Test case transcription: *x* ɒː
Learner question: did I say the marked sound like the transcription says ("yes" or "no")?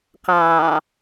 no